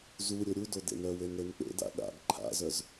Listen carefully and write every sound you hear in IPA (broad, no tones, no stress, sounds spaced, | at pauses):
z u ɾʲ o ɾʲ u d o d ḛ n œ w e n ɾ e n k͡p ḛ d a̰ ɗ a̰ ɡ ǃʰ a̰ z œ z